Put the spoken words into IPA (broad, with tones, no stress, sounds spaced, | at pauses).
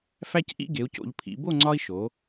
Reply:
f æ˦ c ʔ ḭ˦ ɡ e˩˧ u̯ c o̰˩˧ ʎ pʰ ḭ˩˧ b o˥˨ ŋ͡ǀ ɒ˦ i̯ ʃ o˩˧